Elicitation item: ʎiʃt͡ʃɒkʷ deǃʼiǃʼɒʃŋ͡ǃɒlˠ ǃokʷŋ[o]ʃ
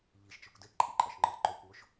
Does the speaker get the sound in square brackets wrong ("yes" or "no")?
no